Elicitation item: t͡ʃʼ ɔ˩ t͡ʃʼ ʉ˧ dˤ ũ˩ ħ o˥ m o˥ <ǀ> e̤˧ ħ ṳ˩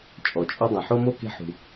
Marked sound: incorrect: k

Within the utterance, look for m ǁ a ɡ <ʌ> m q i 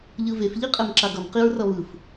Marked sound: correct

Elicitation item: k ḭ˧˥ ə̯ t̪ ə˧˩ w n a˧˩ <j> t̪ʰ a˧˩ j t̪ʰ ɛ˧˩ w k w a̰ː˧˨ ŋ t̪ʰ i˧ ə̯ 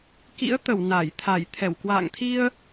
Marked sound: correct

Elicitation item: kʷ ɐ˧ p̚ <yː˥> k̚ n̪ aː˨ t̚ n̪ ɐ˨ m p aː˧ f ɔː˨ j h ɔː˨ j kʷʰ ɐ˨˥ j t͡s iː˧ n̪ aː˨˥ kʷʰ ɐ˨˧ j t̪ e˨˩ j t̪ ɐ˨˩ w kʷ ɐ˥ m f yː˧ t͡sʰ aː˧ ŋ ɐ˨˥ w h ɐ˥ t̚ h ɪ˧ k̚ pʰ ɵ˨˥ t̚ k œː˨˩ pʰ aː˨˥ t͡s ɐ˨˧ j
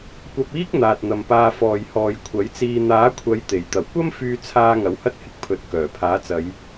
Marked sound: incorrect: iː˥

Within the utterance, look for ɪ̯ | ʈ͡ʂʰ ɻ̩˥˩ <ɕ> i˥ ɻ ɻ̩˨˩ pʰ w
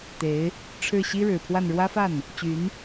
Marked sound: correct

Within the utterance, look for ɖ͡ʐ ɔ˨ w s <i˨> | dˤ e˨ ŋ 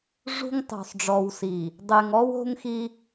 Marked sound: correct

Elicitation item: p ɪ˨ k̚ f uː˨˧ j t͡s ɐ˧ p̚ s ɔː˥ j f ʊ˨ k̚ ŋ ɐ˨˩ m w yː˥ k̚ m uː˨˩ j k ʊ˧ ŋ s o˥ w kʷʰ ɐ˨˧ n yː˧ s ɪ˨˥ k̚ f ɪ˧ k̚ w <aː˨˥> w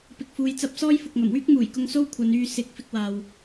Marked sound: incorrect: aː˨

